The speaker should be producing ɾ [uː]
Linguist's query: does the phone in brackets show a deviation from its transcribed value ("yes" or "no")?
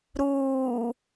no